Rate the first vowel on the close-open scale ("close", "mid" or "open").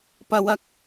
open